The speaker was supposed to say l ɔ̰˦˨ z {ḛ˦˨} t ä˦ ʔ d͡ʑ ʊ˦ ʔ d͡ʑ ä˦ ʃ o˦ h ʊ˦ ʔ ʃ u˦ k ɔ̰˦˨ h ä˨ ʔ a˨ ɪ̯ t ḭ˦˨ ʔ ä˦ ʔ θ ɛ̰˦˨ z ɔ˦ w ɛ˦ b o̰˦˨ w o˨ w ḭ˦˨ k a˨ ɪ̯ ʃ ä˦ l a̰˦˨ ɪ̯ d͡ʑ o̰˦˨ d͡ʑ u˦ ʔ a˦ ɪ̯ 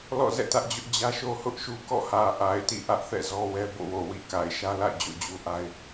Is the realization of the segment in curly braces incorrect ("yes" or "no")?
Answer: yes